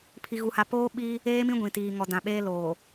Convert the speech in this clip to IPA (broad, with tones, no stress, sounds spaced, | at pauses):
pʰ i˦ ɣ u˦ h a˦ p oː˦ ɓ i˦ | eː˦ m ĩ˦ ɡʷ ĩ˨ t iː˨ ŋ ɔ˨ d ã˨ ɓ eː˦ l o˨